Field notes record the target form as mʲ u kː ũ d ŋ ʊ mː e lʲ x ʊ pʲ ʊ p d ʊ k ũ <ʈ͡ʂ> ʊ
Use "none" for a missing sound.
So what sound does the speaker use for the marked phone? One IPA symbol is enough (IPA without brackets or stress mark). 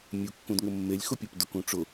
ʈ͡ʂ